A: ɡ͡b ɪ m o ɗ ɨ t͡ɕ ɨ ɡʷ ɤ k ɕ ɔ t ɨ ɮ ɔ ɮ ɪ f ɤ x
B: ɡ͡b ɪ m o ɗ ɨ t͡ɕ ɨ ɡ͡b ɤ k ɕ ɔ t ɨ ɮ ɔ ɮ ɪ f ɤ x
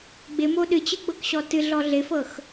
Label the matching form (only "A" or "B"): B